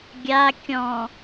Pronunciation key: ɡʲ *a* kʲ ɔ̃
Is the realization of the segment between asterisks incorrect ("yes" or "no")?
no